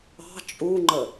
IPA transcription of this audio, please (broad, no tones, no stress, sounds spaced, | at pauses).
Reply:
ɑ̤ t͡ʃʼ u ŋ͡ǃ ə